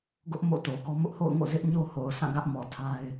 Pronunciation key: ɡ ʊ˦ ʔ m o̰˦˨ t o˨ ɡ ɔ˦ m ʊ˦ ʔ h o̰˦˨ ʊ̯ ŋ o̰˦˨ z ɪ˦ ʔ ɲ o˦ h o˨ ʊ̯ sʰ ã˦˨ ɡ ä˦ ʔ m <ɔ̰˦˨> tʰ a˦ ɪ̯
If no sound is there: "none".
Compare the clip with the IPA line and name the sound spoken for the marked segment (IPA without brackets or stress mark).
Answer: ɔ˨